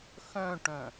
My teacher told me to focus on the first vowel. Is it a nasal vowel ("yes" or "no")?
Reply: yes